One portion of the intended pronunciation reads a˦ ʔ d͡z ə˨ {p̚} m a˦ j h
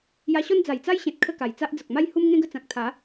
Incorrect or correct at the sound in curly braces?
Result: incorrect: k̚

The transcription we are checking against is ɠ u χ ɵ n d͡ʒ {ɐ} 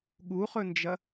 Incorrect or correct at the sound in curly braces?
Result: correct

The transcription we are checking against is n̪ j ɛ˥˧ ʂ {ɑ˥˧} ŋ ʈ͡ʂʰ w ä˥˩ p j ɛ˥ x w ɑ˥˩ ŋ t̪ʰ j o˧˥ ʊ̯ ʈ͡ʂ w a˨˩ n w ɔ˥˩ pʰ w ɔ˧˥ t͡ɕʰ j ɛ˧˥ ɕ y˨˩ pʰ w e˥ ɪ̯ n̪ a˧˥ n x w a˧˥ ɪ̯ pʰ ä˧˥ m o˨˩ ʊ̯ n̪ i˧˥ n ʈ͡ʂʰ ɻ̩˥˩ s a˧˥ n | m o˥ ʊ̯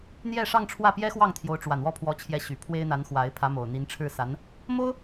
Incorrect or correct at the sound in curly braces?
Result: correct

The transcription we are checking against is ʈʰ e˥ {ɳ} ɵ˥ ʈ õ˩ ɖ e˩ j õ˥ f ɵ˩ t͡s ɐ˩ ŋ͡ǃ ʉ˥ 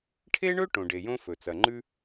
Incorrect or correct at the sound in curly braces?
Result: correct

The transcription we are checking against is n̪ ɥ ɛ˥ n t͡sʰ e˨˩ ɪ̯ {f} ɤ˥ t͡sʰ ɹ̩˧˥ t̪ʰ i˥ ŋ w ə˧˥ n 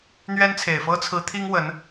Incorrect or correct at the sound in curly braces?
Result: correct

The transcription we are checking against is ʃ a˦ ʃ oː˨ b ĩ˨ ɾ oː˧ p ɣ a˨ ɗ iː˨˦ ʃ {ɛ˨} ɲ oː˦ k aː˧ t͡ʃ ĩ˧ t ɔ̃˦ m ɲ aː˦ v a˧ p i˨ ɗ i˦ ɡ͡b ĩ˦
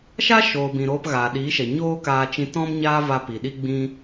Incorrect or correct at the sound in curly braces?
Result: correct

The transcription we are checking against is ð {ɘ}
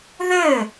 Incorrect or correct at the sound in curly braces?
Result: correct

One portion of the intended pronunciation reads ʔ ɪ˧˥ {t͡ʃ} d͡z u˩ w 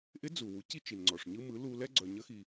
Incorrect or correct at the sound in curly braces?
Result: incorrect: none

